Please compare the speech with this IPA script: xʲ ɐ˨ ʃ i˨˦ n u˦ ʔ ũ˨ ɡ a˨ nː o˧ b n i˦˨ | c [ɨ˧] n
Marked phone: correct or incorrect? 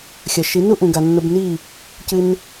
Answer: correct